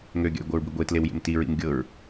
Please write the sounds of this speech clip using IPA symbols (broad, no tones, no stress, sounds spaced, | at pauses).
ŋ ø ɡʲ a̰ j ɡʷ ʌ ɹ b i ɡʷ e t l e w j ḛ m t i ɹ ḭ m ɡʲ ɤ ɹ